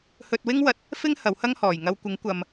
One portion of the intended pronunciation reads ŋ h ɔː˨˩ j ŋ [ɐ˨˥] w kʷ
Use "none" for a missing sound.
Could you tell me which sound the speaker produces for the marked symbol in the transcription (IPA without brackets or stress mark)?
ɐ˧